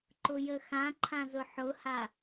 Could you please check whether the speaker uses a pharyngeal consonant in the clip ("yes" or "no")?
yes